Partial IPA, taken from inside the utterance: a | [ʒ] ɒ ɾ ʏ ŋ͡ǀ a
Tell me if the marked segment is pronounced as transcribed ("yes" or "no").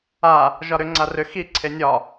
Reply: yes